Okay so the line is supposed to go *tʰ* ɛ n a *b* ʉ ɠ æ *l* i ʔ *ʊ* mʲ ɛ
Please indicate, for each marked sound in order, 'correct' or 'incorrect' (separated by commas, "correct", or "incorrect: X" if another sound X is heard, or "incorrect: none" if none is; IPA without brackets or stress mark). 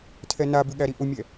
correct, correct, incorrect: ɾ, correct